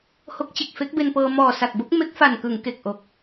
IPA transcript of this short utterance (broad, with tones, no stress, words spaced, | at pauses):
ho˦˥k̚t͡ɕe˨˩k̚ fe˦˥k̚be˧npɤː˧ mɔː˨˩ sa˨˩k̚bo˦˥k̚ me˦˥k̚fa˨˩nkɯ˩˦ŋ ke˨˩k̚ʔo˨˩k̚